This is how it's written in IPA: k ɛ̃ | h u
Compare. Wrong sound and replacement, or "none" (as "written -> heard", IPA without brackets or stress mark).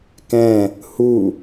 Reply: none